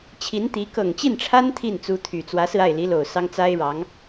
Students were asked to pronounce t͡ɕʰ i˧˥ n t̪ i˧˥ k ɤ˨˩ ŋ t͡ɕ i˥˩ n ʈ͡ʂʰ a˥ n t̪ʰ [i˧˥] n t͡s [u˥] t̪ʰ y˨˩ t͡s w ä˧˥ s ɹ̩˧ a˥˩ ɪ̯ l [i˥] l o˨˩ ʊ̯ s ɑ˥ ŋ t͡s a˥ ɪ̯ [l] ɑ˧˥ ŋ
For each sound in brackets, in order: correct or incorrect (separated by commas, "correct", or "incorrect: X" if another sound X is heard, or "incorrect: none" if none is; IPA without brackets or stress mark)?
incorrect: i˥˩, incorrect: u˧˥, incorrect: i˧˥, incorrect: ɻ